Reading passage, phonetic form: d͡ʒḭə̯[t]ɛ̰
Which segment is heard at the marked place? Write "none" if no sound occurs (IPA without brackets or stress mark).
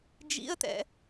t